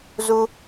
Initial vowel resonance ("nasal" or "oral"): oral